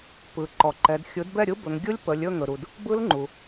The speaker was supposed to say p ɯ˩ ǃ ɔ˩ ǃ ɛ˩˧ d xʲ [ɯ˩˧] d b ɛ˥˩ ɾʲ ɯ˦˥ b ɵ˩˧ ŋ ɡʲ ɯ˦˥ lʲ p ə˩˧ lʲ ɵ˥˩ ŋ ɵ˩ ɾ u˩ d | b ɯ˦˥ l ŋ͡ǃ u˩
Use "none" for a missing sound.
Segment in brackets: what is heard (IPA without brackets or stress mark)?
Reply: ɯ˩˥